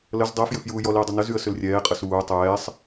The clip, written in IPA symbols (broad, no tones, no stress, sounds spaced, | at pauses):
l ə z dˤ ɛ f j ʏ f j uː j ɔ l i ʊ̯ dˤ ɐ n ə z y ə̯ s ʏ l rʲ ɛː qʼ ə s uː tˤ ɛː sˤ